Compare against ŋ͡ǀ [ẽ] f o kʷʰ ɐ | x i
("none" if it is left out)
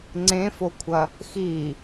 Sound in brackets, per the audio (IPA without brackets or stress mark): ẽ